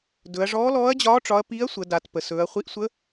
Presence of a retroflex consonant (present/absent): present